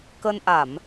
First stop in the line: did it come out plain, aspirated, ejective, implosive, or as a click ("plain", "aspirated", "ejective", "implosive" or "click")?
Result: plain